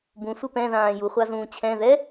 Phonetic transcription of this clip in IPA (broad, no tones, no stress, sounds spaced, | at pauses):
b ũ sʷ e p ɛ̃ ð ãː j u χʷ a z ũː t͡ɕʰ ɛ̃ ð ɛ